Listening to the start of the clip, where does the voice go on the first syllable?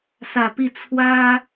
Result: low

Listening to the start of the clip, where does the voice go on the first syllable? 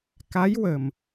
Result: rising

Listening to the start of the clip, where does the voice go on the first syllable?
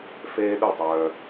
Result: high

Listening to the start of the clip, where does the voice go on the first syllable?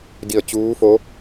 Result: falling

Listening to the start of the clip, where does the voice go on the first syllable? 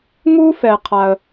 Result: high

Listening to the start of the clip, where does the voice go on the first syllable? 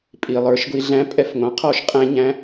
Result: low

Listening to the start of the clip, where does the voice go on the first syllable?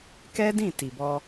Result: high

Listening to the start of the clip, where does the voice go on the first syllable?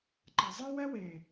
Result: low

